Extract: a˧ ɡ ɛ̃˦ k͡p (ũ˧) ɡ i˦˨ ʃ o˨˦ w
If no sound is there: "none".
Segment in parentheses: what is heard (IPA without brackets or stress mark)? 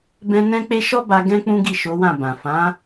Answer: ũ˦